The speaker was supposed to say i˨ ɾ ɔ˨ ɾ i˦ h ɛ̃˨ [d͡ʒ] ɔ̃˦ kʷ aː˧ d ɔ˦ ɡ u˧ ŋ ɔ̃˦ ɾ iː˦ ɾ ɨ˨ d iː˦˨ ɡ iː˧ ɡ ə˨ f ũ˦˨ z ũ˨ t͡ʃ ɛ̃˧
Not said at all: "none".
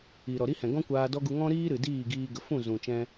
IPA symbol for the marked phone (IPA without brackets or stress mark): ɡ